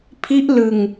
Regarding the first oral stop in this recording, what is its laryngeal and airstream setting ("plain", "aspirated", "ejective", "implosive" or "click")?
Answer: aspirated